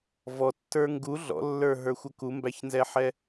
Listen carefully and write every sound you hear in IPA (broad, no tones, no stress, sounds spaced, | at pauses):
v ɔ tː ə˞ ŋ ɡ u ɮ ɔ̰ lː ə˞ ɦ ə˞ xʷ ʌ k u m b æ ç n z ɛ ħ ɛ